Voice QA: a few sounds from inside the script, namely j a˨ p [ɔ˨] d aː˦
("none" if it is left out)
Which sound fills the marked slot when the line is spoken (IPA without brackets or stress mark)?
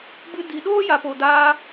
o˨